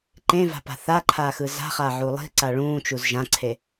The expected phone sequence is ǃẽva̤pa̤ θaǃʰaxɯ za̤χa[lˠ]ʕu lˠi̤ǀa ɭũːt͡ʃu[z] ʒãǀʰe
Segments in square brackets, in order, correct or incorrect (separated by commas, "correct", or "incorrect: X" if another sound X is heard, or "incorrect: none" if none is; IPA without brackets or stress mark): incorrect: none, correct